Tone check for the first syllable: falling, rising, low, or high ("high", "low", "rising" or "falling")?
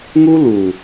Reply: high